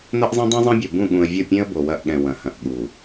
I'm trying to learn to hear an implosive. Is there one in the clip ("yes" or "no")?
yes